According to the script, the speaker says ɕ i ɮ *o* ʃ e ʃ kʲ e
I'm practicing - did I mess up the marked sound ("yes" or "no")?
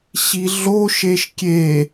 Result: no